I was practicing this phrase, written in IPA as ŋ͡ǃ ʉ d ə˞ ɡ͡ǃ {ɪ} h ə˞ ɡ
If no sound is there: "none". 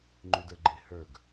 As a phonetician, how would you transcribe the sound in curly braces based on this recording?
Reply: ɪ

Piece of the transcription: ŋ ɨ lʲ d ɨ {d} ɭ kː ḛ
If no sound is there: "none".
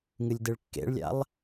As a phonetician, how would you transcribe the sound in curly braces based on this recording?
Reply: none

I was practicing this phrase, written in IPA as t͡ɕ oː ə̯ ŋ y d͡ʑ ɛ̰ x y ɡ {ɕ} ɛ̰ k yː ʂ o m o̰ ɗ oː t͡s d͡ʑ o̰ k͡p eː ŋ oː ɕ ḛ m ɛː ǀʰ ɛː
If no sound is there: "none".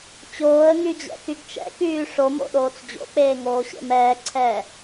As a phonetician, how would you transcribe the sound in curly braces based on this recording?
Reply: t͡ʃ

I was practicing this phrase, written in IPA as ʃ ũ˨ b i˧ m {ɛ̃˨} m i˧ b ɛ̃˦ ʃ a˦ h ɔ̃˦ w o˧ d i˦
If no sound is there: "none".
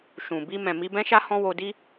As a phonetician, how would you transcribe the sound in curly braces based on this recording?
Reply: ɛ̃˨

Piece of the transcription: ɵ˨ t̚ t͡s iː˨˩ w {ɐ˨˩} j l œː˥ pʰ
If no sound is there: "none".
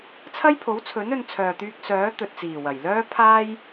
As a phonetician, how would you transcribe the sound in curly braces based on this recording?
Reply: ɐ˨˩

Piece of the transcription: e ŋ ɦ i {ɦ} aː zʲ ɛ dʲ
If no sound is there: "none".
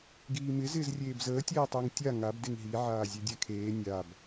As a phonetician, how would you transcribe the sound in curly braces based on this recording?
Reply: ʕ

